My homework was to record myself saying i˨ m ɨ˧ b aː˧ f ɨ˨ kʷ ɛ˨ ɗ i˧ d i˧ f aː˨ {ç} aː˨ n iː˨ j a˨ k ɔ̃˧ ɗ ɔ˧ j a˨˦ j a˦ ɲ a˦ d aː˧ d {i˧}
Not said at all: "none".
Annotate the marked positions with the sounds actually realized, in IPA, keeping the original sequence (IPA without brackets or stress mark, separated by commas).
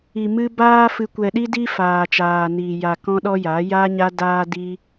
t͡ʃ, i˧